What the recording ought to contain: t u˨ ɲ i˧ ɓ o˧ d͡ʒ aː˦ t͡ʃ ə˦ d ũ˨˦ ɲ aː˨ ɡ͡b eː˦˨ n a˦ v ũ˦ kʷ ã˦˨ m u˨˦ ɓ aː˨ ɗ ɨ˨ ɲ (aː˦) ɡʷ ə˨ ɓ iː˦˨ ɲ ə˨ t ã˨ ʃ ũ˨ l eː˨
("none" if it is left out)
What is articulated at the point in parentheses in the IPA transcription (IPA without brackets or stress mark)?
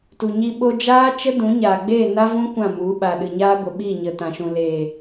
aː˦